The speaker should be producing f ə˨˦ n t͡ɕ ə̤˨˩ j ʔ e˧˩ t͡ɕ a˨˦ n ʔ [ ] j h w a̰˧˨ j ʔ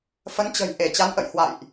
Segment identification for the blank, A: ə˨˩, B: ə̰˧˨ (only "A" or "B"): B